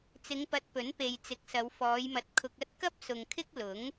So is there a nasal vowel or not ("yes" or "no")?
no